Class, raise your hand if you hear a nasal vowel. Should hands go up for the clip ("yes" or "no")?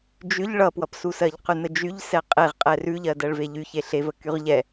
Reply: no